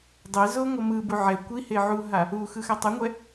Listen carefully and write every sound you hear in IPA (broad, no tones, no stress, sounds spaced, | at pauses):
dˤ ɛ z o ŋʷ ʌ m ɯ b u ʕ ɛ kʷ i h e ʕ u ɦ a | u x ɯ x a tˤ a ŋʷ ɛ